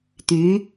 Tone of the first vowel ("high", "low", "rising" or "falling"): rising